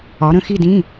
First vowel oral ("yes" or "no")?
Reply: yes